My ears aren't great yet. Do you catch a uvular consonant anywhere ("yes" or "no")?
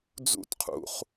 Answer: yes